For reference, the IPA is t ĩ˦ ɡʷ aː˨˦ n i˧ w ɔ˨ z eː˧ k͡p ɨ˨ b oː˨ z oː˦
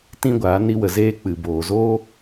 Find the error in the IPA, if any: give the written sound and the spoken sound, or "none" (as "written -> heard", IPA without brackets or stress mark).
ɔ˨ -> ə˨